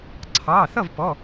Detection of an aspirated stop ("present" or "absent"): present